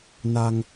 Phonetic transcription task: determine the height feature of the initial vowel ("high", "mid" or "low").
low